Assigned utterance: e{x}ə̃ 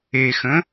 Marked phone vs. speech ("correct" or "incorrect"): correct